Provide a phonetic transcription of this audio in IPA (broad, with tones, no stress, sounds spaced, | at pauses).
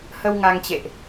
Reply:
h ə˧ w ŋ a˧ ŋ t͡ɕ ḛ˧˨ ʔ